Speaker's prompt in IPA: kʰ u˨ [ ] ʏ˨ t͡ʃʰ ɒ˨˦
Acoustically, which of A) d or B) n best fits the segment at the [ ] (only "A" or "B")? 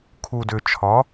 A